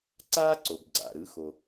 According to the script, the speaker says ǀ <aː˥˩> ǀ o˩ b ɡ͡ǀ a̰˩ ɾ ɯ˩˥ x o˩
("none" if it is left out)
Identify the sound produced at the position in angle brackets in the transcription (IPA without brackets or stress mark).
aː˥